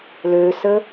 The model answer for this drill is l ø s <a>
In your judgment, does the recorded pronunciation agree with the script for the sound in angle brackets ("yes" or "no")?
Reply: no